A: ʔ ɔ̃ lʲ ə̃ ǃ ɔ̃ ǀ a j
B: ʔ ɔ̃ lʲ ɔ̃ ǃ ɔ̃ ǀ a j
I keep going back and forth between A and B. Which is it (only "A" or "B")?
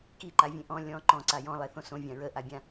B